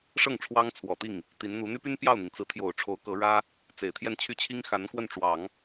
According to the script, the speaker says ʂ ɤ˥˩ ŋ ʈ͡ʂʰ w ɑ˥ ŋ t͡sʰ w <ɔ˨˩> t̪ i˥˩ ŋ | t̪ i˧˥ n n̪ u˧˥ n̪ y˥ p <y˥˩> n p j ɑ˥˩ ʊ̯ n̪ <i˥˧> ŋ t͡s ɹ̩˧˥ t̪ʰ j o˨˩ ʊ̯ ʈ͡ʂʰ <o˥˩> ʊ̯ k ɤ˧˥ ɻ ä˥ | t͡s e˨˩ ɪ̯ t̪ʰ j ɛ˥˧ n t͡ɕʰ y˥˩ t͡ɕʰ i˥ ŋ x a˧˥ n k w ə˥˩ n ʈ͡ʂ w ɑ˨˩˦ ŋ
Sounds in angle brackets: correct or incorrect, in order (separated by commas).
correct, incorrect, incorrect, incorrect